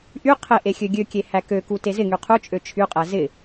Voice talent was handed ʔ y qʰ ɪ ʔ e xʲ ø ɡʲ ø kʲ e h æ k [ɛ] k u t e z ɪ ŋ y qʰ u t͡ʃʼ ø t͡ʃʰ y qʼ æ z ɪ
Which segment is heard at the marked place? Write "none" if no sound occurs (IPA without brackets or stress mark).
ø